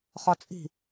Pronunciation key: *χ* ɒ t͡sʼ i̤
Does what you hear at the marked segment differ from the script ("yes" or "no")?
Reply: no